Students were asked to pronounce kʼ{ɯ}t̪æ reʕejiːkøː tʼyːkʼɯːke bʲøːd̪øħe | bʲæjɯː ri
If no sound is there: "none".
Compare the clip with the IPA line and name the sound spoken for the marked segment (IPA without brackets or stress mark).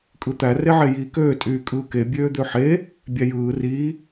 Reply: ɯ